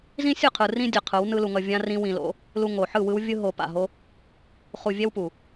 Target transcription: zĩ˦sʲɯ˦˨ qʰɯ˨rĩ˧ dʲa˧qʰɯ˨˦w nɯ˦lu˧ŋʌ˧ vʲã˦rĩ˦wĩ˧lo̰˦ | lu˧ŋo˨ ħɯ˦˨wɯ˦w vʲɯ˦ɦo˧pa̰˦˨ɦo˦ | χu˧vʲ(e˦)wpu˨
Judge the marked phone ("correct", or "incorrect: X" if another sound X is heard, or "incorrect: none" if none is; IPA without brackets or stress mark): incorrect: ɛ˦